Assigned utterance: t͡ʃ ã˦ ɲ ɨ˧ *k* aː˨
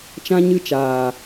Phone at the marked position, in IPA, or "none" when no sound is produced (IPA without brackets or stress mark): t͡ʃ